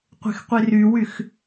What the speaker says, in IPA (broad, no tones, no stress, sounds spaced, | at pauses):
qʷ e̤ x qʷ i r y w y x